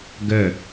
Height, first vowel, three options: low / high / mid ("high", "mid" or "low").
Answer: mid